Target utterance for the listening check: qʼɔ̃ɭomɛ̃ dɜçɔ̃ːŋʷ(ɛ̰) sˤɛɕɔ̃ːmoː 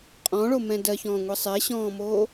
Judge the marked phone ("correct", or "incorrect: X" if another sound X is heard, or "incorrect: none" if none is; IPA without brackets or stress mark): incorrect: ɛ